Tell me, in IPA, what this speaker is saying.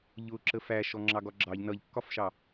ʎ ʊ ǁ ə f æ ʃ ɔ ŋ͡ǁ ɑ ɡ ɒ ɡ͡ǁ ɑ ʎ n ʌ ʎ kː ɒ f ʃ ɑ

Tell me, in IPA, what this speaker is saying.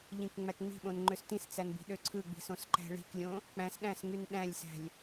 ʎ ĩ k ŋ͡m æ k ŋ͡m i̤ ɓ õ n ŋ͡ǃ ø s t ĩ s t͡s æ n b i̤ ɗ ø ǀʰ ɯ ɡ͡b i̤ s õ s ǃ æ̤ ɭ i̤ k lʲ õ | k͡p æ̃ s ɗ æ̃ s ŋ y n ɗ æ̃ lʲ s æ̤ lʲ

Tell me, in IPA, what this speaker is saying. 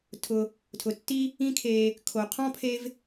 tʰ ʊ˨ | tʰ ʊ˩ tː i˥ | ĩ˦ kʰ e˨ | kʰ o˩ qʰ ɔ̃˥ pʰ e˦ v

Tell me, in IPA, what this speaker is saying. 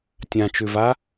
tʲ ã t͡ʃ ʉ v a

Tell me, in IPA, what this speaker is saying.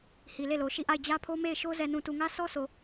h i˨ l e˦˨ l o˨ ʃ i˦˨ ʔ a˦˨ ɪ̯ d͡ʑ ä˦ pʰ o˦ m e˦˨ ɪ̯ ʃ o˦ z ɛ˨ n ũ˨ t u˨ ŋ ä˦ s ɔ˦ s o˨

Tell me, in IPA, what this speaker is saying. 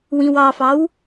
w ĩ w ɑ f ɑ w

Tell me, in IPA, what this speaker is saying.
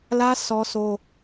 l ä˦ sʰ ɔ˦ s o˦

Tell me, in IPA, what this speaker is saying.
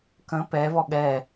k ə̃ p ɛ v ɔ ɠ ɛ

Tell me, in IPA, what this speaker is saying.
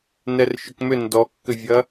n ɛ r ʃ ʏ k m ʏ n d ɔ kː ʏ vʲ ɐ

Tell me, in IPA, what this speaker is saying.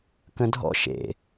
k ə̃ dʱ ɔ̰ ʃ ḛ

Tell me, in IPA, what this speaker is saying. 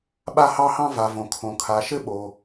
ɓ a˧ h ɑ˧ h ɑ̃˧ v a˩ v õ˩ kʰ õ˩ kʰ a˩ ʃ ɘ˧ ɓ o˩

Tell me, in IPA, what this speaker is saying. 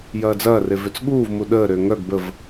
j ɐː d͡z ɐː r e v ʏ t͡s ɠ uː v m u ɗ əː ɾ ʏː ŋ œ ɡ b ə v

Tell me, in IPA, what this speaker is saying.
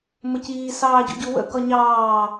m ə c iː s ɑː ɟ ṵ ɟ u w ə̰ ɡ ɒ ɲ ɑː

